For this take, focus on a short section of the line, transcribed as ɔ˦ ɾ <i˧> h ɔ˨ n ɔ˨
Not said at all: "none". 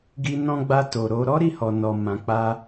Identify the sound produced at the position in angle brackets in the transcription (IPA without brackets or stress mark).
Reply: i˦˨